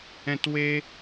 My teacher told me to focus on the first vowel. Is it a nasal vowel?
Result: yes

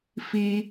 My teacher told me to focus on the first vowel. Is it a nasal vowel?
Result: no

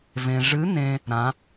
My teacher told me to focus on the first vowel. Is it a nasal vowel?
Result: yes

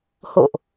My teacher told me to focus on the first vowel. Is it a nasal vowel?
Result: no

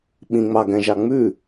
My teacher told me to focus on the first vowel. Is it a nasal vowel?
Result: yes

